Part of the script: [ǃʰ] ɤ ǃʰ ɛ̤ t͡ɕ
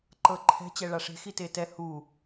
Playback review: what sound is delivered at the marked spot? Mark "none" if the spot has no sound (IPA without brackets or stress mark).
ǃ